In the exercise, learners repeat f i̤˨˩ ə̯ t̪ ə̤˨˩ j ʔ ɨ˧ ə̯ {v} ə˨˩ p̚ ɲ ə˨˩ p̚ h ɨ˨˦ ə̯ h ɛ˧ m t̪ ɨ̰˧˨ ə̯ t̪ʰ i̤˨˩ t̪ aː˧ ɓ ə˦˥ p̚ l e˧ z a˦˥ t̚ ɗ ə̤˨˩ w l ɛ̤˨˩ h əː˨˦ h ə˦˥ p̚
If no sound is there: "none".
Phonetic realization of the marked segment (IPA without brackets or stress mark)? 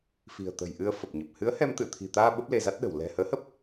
f